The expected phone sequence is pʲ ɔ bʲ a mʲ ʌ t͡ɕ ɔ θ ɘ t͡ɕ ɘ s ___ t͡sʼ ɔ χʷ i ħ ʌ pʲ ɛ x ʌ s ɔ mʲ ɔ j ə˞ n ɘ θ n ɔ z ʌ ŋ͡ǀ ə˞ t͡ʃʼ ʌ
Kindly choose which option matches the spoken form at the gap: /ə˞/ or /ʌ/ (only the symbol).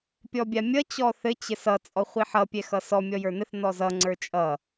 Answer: ʌ